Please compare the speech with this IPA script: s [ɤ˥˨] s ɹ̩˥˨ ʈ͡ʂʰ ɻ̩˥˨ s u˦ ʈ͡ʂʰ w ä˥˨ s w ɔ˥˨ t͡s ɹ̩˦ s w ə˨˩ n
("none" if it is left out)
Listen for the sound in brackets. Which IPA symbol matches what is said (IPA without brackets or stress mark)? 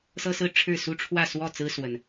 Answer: ɤ˦